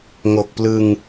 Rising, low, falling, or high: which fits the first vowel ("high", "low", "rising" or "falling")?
low